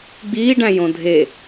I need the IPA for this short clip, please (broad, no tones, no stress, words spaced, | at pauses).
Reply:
ɡ͡biːɖæ̃jõ dʱe